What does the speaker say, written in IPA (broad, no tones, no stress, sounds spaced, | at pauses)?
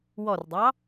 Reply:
w ɔ r dˤ ɑ